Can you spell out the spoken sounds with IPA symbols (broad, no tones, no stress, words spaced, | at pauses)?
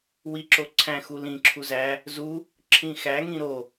wiǁo ǀʰæ̃ xulĩǁʰu zæ | zu | ǁʰĩxæŋĩ ɾo